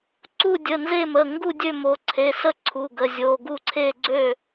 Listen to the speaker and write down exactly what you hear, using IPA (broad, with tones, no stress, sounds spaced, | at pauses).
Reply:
ǀ u˥˨ dʲ ə˩˧˩ n z e˥˨ m ə˩˧˩ ŋ ɡ u˥˨ dʲ ø˥˨ m o˩˧˩ ǀʰ e˩˧˩ s ə˥˨ ǀʰ u˩˧˩ ɡ ə˩˧˩ zʲ o˩˧˩ ɡ u˥˨ ǀʰ e˥˨ ɡ͡ǀ ø˥˨